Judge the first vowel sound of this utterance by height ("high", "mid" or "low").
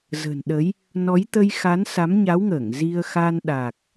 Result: mid